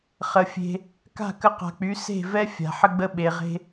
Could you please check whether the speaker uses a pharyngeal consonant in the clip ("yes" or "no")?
yes